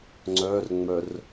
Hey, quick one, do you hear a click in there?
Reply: yes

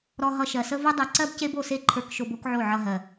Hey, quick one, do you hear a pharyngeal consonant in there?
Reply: yes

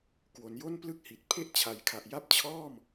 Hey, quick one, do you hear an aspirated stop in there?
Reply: yes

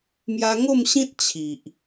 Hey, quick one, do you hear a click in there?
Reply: no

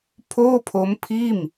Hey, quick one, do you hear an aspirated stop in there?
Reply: yes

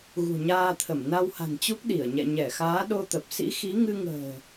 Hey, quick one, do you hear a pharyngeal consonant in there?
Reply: no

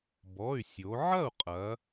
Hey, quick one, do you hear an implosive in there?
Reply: no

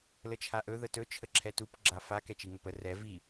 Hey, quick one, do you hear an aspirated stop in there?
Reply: yes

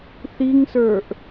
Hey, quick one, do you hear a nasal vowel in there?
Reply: no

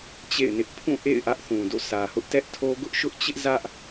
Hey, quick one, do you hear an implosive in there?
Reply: no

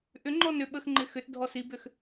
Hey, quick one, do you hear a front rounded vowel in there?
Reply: yes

